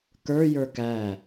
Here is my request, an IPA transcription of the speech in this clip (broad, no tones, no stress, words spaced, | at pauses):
kə˞ jə˞kæ